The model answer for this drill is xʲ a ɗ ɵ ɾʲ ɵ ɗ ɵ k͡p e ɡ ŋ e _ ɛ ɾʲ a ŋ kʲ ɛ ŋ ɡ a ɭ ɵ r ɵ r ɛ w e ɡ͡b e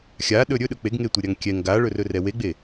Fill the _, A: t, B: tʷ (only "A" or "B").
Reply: B